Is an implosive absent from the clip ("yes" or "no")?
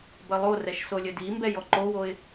yes